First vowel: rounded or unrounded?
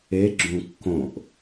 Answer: unrounded